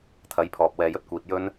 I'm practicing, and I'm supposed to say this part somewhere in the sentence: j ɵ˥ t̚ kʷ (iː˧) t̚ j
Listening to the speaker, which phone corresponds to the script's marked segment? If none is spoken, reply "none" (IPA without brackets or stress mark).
iː˧